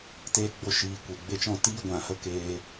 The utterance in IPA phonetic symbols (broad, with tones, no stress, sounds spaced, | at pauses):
t eː˧ ɡ͡b o˧ ʃ iː˨ kʷ e˨ ɡ͡b e˦ t͡ʃ ɔ̃˦ t iː˦ ɡʷ ã˨ h ə˦ k eː˧